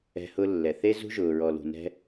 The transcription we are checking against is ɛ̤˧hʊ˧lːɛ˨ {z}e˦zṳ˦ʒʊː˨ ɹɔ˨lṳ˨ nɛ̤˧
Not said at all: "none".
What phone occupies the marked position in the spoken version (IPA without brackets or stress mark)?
θ